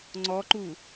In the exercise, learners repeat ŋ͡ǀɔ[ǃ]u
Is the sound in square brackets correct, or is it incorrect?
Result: correct